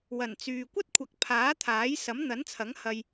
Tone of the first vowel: low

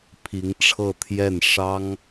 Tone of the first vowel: rising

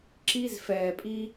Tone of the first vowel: high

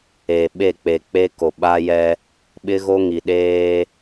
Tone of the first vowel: low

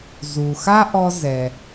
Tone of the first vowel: low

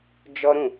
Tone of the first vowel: high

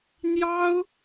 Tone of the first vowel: high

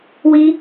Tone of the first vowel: high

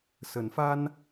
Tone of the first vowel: rising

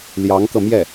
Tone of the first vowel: rising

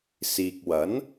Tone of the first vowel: low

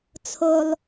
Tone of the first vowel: high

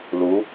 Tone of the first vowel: rising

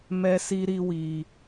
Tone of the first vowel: high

